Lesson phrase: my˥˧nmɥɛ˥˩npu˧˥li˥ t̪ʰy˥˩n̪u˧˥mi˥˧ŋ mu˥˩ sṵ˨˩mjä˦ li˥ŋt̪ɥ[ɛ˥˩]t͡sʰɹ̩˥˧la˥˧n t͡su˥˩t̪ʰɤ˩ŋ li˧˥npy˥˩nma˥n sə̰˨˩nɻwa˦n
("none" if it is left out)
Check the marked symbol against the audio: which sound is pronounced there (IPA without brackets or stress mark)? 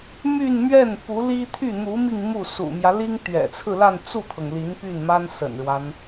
ɛ̰˨˩